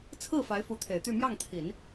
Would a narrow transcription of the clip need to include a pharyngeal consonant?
no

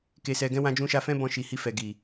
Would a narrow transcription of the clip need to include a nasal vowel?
yes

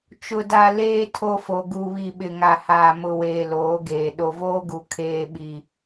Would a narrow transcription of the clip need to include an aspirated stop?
yes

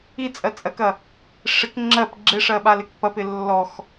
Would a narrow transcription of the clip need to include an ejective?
yes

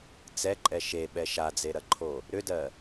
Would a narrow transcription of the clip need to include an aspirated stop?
yes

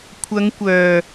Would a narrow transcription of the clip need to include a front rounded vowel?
yes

